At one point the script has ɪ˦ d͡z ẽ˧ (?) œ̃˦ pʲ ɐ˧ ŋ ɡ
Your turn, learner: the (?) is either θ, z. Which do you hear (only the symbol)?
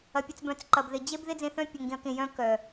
θ